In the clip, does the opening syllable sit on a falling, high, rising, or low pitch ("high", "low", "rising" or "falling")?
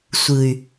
low